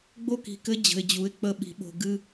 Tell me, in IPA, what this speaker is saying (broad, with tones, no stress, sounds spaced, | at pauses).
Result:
ɡ͡b o˦˨ k i̤˨ k ɘ˦ d͡ʑ ə̤˨ ɪ̯ d͡ʑ u˨˦ ɪ̯ k͡p ə˦˨ ɓ i̤˨ ɓ o̤˨ ɡ ɨ˦